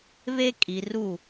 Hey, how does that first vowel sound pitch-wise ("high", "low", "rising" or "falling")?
high